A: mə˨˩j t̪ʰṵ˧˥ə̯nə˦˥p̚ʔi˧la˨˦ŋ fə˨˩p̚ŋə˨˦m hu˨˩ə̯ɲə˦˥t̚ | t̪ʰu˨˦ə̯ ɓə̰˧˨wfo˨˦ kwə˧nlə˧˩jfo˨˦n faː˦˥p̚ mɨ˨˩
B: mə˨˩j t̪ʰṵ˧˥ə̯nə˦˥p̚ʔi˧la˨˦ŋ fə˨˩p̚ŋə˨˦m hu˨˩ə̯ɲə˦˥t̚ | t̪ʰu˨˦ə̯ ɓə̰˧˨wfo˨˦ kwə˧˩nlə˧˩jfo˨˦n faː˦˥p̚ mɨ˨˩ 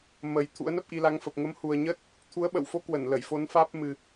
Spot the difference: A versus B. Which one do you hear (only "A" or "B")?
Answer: B